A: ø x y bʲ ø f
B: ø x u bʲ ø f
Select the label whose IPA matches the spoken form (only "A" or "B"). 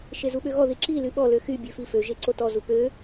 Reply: A